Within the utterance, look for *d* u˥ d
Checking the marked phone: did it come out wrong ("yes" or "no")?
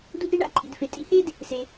no